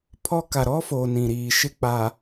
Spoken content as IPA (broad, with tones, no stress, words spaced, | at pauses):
pʰɔ˦ ka˨ɾɔ˦foː˨ nĩ˨ɾiː˨ ʃɪ˦k͡pa˨